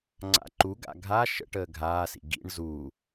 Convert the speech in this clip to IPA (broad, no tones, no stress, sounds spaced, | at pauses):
ŋ͡ǀ a̰ ǃ u ɡ a̰ ɡʱ a ʃ ə̰ ʈ əː ɡʱ aː s ḭ ɡ ḭ ɳ z u